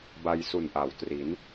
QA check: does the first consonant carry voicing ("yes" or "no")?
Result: yes